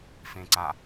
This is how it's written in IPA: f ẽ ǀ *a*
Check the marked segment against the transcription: correct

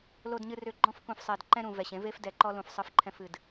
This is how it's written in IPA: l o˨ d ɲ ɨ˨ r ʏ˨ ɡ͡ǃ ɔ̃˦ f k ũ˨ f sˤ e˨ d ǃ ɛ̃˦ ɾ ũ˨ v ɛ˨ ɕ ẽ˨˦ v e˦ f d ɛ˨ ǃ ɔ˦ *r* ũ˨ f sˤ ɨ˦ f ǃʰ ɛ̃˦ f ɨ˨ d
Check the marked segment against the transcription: incorrect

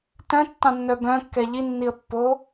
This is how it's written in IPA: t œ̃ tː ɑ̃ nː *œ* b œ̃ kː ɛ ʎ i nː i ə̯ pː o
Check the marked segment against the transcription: correct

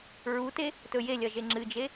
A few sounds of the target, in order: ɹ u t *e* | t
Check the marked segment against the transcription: correct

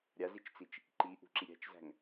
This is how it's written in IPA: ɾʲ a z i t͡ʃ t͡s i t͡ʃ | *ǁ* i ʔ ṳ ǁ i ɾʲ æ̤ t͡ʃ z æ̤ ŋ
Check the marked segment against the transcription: incorrect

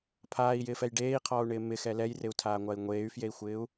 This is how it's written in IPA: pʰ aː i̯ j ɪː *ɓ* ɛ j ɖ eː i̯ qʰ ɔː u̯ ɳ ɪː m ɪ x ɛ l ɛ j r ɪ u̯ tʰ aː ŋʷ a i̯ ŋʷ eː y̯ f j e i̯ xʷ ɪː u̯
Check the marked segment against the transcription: incorrect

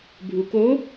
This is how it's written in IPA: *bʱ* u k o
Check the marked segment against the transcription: correct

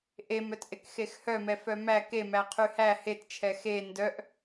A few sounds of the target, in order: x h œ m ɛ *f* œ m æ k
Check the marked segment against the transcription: correct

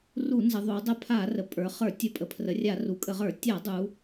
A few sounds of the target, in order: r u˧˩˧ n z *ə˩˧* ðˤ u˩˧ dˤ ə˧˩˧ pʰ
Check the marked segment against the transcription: correct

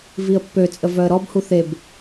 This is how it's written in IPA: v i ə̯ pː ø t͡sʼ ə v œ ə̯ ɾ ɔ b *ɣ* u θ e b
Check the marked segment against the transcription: incorrect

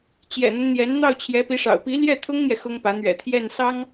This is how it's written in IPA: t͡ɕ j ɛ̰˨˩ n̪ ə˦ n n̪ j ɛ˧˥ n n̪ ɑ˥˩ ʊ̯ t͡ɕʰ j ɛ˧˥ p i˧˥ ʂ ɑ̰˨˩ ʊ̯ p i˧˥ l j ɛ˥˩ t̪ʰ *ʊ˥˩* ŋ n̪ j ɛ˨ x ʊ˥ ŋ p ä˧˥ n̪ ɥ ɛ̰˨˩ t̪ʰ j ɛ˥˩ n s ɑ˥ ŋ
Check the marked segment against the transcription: incorrect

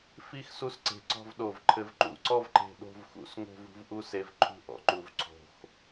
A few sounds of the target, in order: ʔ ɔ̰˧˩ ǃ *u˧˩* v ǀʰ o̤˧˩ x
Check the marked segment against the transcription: correct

